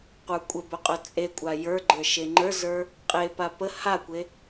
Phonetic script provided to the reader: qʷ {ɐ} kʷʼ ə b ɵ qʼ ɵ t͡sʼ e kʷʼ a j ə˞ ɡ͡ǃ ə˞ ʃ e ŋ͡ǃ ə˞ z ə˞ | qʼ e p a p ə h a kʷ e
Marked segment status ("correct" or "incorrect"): incorrect